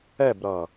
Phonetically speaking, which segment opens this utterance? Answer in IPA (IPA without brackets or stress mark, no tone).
ɛ